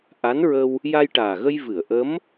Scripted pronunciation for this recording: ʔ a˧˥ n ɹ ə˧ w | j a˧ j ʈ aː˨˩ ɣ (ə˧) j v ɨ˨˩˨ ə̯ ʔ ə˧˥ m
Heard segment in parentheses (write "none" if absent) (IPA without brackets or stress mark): ə˧